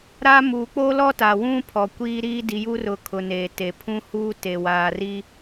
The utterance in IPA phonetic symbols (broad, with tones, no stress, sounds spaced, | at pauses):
ɾ a˦ m uː˨ k͡p oː˦ l ɔ˦ t aː˨ w ũ˦ pʰ ɔ˨ kʷ iː˦ ɾ iː˦ d i˨ j u˦ r ʊ˨ kʰ ʊ˨ n eː˨ t e˨ pʰ ũ˦ h uː˦ t e˨ w aː˨ r iː˦